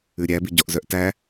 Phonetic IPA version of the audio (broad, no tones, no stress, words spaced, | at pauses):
ʉɾʲæbiɟɔʔ zœʔtæ